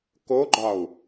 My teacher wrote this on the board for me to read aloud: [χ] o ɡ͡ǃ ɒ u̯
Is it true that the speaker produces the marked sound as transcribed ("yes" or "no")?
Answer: no